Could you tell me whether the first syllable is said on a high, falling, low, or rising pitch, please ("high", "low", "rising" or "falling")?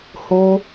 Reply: high